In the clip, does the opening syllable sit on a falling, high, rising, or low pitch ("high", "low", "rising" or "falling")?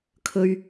high